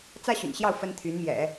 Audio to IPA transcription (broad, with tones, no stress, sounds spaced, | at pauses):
t͡s ä˥ ɕ y̰˨˩ n ɕ j ɑ˥˩ ʊ̯ f ə˥ n t̪ʰ y˧˥ n m j ɛ̰˨˩˦